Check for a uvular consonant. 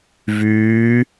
absent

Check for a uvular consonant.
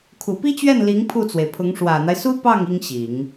absent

